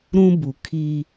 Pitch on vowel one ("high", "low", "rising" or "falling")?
high